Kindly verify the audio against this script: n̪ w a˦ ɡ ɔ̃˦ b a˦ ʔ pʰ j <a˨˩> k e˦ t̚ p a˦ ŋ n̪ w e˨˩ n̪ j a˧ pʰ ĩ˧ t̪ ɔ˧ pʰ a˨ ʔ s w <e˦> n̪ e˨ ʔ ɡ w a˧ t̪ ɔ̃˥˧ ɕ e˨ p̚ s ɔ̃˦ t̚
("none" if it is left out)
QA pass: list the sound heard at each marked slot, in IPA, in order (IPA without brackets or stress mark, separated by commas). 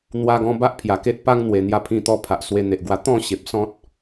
a˨˩, e˧